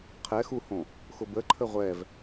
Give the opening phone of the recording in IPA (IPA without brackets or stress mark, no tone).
qʰ